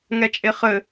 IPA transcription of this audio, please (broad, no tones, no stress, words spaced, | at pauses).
ŋɛt͡ʃʼeχɘ